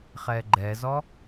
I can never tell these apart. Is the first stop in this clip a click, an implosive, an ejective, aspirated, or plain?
click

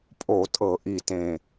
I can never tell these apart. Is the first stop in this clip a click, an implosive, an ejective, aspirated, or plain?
ejective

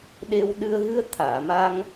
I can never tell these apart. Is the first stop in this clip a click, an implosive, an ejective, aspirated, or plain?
implosive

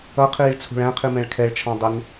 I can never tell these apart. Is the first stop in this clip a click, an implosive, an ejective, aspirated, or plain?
aspirated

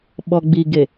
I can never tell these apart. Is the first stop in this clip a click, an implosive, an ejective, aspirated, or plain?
implosive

